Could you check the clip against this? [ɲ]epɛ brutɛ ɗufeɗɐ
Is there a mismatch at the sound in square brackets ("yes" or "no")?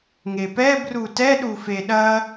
yes